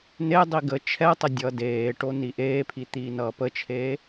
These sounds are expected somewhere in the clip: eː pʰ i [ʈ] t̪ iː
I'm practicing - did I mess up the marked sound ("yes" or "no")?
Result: yes